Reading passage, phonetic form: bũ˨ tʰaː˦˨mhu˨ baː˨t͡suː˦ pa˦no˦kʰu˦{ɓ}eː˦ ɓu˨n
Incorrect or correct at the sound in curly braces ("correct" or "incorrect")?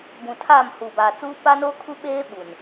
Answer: correct